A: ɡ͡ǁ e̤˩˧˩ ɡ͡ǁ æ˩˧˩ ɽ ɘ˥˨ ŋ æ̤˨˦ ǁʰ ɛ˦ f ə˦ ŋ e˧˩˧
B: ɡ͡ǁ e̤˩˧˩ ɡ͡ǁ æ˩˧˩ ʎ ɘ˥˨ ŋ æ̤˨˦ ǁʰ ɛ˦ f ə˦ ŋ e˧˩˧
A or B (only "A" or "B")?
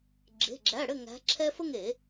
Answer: A